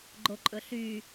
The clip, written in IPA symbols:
ɡ͡ǃoǃʼɵɬy

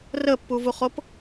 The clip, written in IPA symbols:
rəpːuvuχop

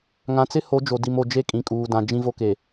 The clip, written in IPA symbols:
ŋã˨t͡sɪ˦ho˨˦ d͡ʒo˨di˨mo˨ d͡ʒe˦ kʼĩ˨kʼuː˨ dã˨d͡ʒĩ˦vo˦ke˨

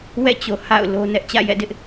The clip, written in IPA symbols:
wɛ̰˦˨t͡ɕo˨ ha̰˦˨ʊ̯ lo˦ nɛ˦ʔ t͡ɕä̰˦˨jɛ̰˦˨dɪ˦ʔ

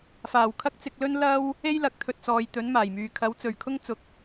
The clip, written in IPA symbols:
faː˨˩wkʰɐ˥k̚t͡sɪ˧k̚lɵ˥n lɐ˥w | e˥jlɐ˨˥k̚t̪ʰɵ˨t̚t͡sɔː˨j t̪ɵ˨˥nmaː˨˩jmyː˨ kʰɐ˨˥wt͡sɵ˨˩ɥkʰʊ˥ŋ t͡sʊ˨˥k̚

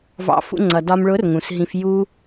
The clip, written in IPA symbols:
vɑ̰˧fṵ˧ŋ͡ǀʌ˨dɒ˧m ɭʊ˨˦r ŋũ˨sɦĩ˧f ju˧

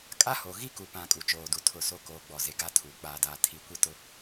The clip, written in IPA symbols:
kʼa˦ho˨ ɣi˦ku˨pã˨ kʼu˨t͡ʃoː˨du˨ tʰʊ˦˨so˦ koː˨ɡ͡bɔ˨ze˨ ɡa˦ tʰuː˨k͡paː˦daː˦ tʰi˨kʷi˦tʊ˦

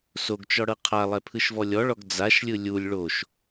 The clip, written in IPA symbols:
soɡt͡ʃɔɽɤ qʰalˠɛpʰɯʃvɔ lʲɔɭɔɡ d͡zaʃlʲɯ lʲulʲ ɭoʃ

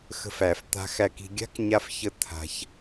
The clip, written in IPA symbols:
xə̤˧fæ˨f t̪a̤˧xæ˧ki̤˧ ɡʲa̤˦kɲa˧fçə˧ t̪ʰa̤˧ç

